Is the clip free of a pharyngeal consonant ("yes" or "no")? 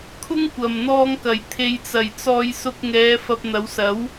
yes